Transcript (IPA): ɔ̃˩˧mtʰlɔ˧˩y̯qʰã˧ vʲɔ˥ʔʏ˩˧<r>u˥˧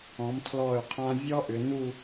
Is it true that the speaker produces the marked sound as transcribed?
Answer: no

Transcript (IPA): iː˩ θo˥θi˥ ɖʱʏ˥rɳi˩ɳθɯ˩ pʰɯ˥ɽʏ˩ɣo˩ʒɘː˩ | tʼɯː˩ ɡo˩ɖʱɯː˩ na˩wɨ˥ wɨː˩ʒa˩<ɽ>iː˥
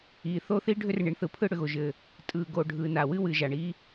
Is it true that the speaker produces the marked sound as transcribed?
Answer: no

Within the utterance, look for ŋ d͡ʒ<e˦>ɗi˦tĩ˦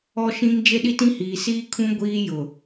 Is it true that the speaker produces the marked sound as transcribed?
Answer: yes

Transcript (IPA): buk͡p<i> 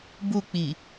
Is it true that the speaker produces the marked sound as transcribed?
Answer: yes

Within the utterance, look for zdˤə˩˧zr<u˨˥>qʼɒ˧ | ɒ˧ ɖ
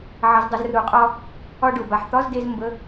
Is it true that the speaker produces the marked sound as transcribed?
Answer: no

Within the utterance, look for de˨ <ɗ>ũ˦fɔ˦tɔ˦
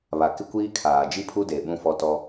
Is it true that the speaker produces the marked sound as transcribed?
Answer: no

